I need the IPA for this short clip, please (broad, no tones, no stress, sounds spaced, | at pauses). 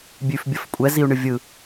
bʲ ʉ f bʲ ə f kʷʼ ɛ z i u̯ ɳ ɯ vʲ ɯ